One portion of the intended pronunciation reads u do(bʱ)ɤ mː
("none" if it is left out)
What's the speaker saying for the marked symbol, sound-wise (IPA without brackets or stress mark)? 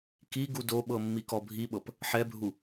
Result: ɓ